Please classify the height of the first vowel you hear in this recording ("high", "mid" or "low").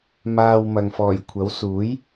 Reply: low